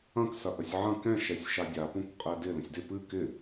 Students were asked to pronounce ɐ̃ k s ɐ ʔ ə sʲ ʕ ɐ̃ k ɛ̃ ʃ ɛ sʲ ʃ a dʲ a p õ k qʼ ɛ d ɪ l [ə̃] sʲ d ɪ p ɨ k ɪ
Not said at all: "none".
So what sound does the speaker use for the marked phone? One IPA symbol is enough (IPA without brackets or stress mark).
ə̃